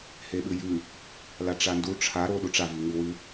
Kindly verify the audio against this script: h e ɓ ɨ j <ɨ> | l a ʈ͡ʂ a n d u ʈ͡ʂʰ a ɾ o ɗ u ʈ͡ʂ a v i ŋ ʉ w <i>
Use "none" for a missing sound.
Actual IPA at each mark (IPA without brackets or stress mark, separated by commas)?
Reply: ʉ, ɨ